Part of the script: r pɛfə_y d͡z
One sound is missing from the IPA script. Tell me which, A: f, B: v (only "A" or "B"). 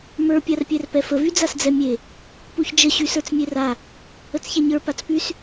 B